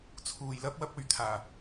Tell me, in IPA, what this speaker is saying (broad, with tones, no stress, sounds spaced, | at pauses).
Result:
t͡sʰ uː˨ j l ɐ˥ p̚ w ɐ˧ p̚ ɵ˨ ɥ t̪ʰ aː˨˩